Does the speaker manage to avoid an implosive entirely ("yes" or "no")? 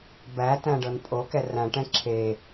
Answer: yes